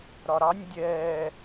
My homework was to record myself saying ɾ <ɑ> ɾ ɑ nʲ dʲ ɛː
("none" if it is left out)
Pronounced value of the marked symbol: ɒ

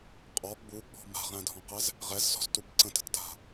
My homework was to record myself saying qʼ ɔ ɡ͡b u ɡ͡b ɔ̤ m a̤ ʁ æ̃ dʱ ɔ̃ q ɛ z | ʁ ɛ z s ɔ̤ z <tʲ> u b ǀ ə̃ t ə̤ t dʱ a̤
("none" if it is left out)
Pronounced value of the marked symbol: t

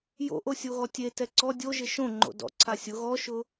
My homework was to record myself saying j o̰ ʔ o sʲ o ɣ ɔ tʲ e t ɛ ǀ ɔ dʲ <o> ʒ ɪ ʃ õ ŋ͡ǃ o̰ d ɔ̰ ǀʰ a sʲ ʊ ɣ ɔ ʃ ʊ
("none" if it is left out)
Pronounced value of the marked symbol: o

